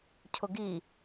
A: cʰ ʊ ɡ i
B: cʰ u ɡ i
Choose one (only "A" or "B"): A